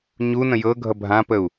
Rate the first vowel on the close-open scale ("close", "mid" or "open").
close